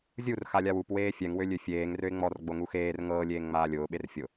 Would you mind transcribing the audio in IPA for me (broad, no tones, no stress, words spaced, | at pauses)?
zʲur xalʲawup weːfʲɛŋ wølʲøfʲeːŋ røɪ̯ŋ͡mɔr ɡ͡boŋuxeːr ŋɤː lʲeːŋŋ͡maːlʲʊː ɓerfʲʊ